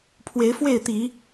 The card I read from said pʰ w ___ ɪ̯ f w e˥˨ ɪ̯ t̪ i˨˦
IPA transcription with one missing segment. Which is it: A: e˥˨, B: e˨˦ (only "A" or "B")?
B